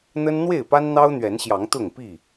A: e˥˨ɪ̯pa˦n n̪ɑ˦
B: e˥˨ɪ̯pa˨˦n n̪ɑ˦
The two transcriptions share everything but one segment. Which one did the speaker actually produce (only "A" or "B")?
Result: A